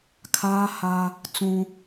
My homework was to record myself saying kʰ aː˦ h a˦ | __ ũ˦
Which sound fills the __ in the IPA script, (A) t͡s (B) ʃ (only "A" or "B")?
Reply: A